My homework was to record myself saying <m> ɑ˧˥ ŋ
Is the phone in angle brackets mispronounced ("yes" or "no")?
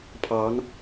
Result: yes